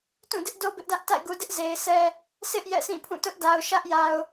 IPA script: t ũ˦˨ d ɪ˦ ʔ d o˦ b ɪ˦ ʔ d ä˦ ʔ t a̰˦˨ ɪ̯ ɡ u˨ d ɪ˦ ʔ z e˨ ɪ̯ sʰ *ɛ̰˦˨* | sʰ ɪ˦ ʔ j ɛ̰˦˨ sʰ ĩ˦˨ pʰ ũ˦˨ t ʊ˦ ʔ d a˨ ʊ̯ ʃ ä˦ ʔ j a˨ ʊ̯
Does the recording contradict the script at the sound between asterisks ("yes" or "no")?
yes